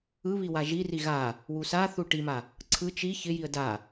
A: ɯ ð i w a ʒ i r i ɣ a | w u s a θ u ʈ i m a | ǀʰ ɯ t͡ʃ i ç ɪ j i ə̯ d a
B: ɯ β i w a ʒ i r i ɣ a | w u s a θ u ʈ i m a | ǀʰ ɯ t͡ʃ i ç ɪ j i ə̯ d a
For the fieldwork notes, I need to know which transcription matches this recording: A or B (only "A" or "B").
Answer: B